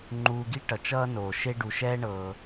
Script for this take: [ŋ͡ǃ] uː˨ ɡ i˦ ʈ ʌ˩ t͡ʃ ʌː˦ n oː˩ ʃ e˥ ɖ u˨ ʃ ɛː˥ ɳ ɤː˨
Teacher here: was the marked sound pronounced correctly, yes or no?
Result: yes